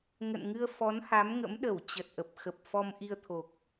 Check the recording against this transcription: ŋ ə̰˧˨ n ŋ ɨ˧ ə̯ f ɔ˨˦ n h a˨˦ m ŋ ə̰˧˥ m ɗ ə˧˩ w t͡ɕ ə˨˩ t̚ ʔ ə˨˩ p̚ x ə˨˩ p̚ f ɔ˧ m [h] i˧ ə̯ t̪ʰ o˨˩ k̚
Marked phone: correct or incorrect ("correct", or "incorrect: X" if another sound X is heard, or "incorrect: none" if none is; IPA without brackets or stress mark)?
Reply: incorrect: ʔ